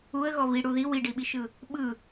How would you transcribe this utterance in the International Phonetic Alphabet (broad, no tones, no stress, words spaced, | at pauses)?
uə̯ɣɔ βi ɽuði wiɖiɓiʃɯ | ɓɯ